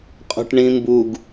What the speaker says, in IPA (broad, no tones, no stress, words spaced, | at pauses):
qʼo̤ʈɳĩmbuɡ